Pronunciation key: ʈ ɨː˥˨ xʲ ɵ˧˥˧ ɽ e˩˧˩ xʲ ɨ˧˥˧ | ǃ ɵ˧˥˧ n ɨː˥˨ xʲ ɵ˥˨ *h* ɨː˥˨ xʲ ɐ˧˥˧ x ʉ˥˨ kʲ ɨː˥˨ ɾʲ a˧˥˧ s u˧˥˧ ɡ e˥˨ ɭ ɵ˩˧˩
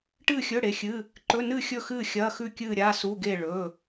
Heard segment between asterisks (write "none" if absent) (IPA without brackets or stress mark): x